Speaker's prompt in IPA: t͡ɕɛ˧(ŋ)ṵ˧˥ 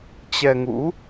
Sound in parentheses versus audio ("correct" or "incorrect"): correct